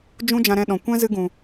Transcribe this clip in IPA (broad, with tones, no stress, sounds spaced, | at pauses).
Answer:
d͡ʒ ũ˦ d͡ʒ ã˧ ɾ ɛ̃˧ ɗ ɔ̃˨ kʷ ɛ̃˦ z ɨ˧ ɡ ũ˨